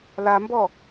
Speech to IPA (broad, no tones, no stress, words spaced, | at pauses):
lambɔ